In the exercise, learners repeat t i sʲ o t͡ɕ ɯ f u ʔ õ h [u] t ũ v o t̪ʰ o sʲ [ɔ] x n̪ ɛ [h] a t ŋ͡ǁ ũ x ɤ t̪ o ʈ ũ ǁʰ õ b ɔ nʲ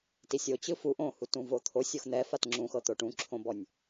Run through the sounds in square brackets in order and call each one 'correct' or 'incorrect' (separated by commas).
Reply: correct, incorrect, incorrect